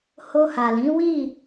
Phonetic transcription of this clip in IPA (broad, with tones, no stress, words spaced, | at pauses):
ho˧ha˨lĩ˨˦wi˦˨